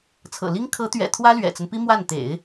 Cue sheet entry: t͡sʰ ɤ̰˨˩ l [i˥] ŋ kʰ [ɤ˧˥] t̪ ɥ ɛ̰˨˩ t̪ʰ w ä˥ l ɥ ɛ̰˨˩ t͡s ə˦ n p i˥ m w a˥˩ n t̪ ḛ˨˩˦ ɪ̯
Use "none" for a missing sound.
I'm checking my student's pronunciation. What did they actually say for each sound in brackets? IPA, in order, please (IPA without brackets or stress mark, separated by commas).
i˥, ɤ˧˥